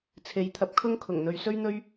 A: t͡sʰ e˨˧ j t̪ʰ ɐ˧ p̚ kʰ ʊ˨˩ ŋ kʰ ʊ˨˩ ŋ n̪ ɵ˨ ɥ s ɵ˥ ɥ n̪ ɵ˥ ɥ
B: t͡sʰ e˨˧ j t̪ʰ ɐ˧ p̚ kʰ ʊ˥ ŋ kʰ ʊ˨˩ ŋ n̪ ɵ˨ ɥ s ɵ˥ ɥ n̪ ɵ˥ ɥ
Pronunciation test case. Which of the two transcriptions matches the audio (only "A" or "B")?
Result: B